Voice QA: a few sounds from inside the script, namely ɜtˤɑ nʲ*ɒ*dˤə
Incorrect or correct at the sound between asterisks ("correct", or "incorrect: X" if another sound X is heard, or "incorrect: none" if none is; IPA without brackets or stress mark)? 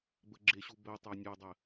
incorrect: ɑ